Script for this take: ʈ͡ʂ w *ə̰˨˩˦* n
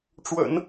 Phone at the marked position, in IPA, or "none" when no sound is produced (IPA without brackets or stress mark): ə̰˨˩˦